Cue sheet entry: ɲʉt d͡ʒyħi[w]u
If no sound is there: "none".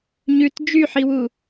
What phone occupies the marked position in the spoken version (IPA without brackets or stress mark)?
w